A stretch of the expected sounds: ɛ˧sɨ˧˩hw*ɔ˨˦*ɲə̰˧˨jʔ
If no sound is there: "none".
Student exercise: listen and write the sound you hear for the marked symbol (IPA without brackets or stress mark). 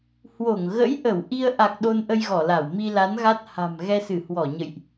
ɔ˧˩